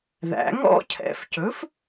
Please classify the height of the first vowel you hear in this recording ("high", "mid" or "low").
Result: low